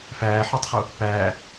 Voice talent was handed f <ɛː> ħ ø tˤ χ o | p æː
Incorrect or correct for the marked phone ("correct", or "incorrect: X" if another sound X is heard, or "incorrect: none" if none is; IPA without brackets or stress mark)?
incorrect: æː